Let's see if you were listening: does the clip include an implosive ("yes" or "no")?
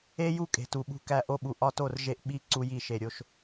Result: yes